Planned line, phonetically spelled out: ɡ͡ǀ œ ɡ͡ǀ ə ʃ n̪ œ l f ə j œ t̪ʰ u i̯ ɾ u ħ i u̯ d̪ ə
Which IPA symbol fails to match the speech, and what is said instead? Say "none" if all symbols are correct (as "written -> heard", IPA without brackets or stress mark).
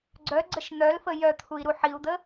none